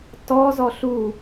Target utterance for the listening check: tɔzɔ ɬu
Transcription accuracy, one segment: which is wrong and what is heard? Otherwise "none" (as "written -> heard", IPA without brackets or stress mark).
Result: none